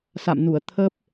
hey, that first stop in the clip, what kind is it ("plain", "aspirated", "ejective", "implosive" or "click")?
aspirated